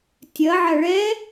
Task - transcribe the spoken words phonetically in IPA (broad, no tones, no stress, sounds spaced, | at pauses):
tʲ ɐ ʕ ɐ ɭ ɛ